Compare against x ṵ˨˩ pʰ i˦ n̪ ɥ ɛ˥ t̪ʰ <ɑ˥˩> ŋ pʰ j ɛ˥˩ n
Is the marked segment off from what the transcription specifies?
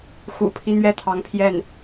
yes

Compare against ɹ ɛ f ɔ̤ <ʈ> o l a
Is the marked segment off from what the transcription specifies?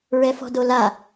yes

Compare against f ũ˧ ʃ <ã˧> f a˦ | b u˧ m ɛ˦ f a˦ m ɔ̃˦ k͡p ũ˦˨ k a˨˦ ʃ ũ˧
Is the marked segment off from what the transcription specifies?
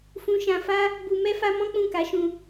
no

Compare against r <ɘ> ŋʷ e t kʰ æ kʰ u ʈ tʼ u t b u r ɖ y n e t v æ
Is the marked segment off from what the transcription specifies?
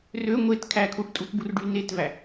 yes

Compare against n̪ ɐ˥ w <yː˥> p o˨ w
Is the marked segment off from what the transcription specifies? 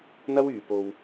yes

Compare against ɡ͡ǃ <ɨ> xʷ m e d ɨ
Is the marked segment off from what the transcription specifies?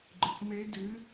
no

